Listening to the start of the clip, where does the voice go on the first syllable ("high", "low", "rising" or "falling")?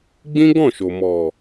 high